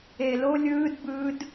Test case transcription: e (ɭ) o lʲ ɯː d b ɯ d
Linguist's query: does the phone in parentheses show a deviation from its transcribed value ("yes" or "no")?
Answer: yes